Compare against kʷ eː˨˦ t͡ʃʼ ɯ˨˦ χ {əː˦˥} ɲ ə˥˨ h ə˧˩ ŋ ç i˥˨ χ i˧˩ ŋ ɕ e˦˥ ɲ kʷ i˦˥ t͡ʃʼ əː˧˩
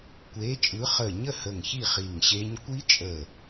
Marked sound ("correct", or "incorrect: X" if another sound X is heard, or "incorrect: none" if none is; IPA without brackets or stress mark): incorrect: əː˧˩